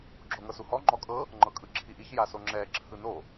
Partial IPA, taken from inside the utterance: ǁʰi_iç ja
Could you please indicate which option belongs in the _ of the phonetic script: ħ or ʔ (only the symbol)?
ʔ